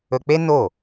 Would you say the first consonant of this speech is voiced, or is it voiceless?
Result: voiceless